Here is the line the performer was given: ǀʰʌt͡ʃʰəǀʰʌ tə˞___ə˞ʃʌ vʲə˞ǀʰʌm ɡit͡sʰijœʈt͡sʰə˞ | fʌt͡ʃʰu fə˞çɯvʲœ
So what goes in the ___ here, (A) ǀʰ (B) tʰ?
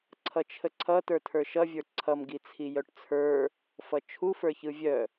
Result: B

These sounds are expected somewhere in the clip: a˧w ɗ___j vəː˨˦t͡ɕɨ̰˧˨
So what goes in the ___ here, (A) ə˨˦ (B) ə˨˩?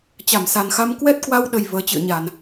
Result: B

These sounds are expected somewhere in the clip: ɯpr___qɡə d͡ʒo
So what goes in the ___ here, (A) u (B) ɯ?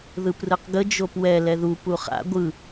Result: B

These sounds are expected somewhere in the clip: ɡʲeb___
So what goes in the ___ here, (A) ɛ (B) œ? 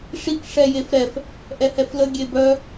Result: B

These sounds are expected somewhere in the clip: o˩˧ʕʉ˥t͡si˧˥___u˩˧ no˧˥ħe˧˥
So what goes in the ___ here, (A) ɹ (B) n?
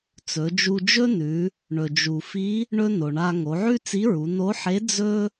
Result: A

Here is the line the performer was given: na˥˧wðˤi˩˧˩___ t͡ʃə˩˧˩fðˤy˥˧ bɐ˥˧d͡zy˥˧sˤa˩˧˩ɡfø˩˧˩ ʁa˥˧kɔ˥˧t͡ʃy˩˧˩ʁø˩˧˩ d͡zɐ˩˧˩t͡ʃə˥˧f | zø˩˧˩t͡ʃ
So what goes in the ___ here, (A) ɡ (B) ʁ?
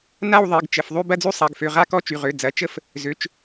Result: A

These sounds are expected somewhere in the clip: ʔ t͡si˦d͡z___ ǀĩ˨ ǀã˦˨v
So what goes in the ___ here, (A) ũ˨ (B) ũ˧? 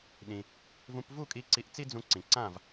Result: B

